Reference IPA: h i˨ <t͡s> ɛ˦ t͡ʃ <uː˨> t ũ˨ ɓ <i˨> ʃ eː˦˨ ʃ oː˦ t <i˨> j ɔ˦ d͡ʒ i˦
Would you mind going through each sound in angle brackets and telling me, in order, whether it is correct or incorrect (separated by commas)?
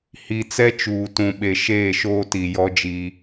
correct, correct, incorrect, correct